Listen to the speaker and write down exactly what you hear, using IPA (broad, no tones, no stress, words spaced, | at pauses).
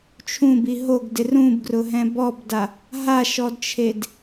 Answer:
t͡ʃʰũbi ɦoɡdɪ rũbɡrʊɦɛ̃ bɔbda | ɦaʃɔdt͡ʃʰed